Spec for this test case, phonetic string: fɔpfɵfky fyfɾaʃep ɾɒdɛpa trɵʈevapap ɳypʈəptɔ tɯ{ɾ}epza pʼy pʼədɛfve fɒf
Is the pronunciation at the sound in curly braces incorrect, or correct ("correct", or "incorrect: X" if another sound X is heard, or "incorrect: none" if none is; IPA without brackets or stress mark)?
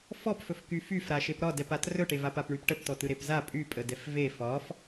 correct